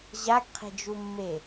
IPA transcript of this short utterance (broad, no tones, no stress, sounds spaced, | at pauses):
ʑ a ɡ qʰ e̤ d͡ʒ u mː e